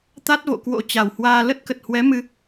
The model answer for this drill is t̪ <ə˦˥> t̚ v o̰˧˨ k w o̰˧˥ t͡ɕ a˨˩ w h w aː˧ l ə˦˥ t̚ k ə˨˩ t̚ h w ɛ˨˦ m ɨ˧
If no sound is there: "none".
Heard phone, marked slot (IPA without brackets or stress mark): a˦˥